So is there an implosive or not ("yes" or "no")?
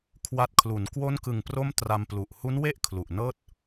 no